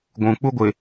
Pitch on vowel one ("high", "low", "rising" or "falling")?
low